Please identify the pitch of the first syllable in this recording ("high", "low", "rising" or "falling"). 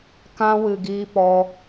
high